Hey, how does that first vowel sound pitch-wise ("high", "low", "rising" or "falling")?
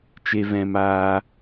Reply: high